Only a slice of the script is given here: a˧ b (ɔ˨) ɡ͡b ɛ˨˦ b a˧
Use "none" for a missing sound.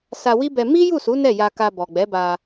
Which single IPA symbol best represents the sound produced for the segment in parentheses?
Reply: ɔ˨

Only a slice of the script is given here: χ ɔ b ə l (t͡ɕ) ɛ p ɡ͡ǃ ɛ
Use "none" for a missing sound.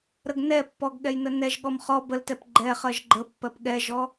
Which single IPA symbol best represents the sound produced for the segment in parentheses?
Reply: t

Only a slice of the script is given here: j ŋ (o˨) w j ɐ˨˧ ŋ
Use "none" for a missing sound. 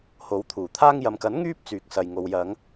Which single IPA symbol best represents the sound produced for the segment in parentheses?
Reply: o˨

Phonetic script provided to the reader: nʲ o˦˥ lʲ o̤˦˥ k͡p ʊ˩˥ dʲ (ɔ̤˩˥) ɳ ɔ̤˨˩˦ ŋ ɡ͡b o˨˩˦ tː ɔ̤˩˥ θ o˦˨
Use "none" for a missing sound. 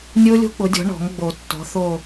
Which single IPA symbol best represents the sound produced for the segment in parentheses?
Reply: ɔ̤˩˥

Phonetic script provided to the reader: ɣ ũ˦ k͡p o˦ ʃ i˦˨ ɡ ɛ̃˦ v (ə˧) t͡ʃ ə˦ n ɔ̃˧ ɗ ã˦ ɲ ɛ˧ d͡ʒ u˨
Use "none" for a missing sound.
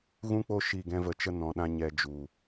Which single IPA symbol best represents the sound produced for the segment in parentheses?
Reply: ə˧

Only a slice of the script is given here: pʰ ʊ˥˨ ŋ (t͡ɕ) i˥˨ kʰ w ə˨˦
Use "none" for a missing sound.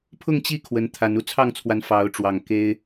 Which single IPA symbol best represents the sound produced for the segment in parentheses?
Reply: t͡ɕ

